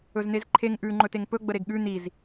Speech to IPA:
ɵzn̪ezǃʰeŋ ʔʉ ŋ͡ǃɵteŋpɵ ɡ͡bəɾeɡɠʉ n̪iz

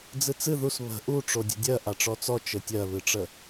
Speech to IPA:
d͡zɨt͡sɨ ðus βə̤ ʔu ʈ͡ʂodʲə̤dʲɜ ʔaʈ͡ʂɔt͡sɔ t͡ʃɘtʲɜβɨʈ͡ʂə

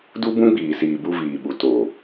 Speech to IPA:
du˦bũ˦ɡ͡biː˨siː˨ bu˧viː˨ɓu˨ to˨

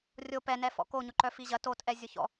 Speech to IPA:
rʲo pɛnɛfɔ̰ koɲʊǃœ fiʑɐ totʔɛ zʲʊçɔ̰

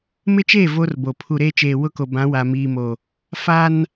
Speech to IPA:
mɪ˦t͡ʃeː˦˨ vo˦rbo˨ pʰu˨ɾeː˦t͡ʃeː˨ wʊ˦ko˨bã˨˦ wa˨miː˨mo˨ | fa˦n

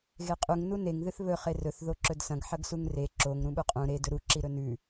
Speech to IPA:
ɣeqʼuŋ nuneŋ ðɨθβɵ χerɵθ ðoǁɵdsɐ̃ɡ ħɐɡsuŋre ǁoŋ ɾũɓuqʼũ ɾe dɵɾu ǁiɾɵnʉ

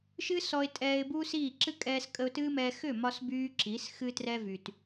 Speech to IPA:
ʃɨ˦sɔ˧ɪ̯tʼɛː˧ɪ̯bu˦ siː˦˨ ǁɨ˦ kʼɛː˧skʼə˧ʊ̯tɨː˦mɛː˧ xʏ˦˨mɒ˧sbyː˧ ǁi˨˦s xɨ˧trɛ˧vy˨t

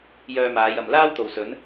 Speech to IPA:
jœː˧maː˨˧j ɐ˨mlaː˥w t̪o˨wsɵ˨˥n

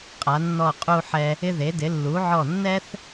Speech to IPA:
qʼa˩˧nːɔ˧˩ qʼu˧ħɛ˧ | ɪ˧ðe˩˧dɪ˩˧ lːu˩˧ʕɔ˧˩ nːɛ˥θ

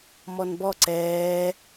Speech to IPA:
mɔnbɔ ǀɛː

